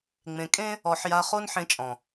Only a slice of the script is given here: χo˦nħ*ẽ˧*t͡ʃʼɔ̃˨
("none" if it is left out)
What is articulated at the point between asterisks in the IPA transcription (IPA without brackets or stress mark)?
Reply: ẽ˧